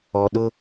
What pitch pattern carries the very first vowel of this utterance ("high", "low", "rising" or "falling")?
high